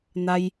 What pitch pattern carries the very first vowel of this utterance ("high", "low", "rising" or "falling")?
high